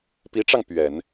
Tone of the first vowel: rising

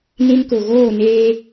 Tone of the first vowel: high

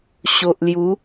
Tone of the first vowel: low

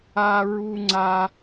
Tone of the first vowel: high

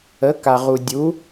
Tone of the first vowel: rising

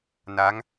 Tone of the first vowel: rising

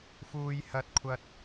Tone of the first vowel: high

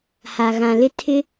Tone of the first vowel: low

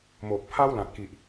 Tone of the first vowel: low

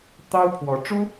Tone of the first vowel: high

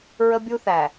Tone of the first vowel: high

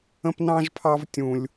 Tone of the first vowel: high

